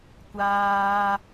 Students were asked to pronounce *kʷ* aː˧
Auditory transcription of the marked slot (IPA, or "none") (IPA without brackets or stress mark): kʷ